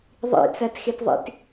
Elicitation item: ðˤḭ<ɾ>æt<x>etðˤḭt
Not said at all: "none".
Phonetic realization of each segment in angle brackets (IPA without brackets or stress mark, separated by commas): t͡s, x